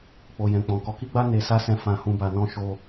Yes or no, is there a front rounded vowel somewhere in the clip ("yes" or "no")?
no